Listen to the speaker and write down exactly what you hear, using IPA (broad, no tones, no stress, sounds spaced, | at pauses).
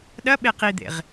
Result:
ɗ ɐ ɓ e q i d̪ ḛ ʁ